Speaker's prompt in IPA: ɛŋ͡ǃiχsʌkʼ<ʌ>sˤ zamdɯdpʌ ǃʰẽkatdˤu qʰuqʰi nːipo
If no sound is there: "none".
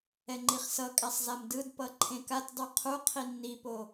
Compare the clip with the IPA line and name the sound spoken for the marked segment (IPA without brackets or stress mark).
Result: a